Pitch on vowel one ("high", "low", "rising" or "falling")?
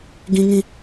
high